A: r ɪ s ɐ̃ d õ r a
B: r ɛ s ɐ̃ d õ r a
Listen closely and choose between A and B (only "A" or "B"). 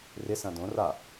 A